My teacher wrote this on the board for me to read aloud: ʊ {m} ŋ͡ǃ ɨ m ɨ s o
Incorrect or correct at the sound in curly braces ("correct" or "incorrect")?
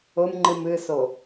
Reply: correct